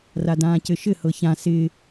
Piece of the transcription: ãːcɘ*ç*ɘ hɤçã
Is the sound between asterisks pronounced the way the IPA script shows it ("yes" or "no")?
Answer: no